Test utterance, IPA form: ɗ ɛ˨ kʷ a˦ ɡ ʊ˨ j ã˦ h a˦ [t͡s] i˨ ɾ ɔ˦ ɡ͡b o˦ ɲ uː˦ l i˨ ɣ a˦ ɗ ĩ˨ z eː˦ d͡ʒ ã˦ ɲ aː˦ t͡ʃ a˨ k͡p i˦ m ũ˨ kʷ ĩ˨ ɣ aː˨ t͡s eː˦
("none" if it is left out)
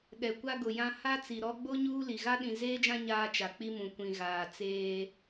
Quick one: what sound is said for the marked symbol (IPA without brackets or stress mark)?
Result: t͡s